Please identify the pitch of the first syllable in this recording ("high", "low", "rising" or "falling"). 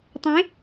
rising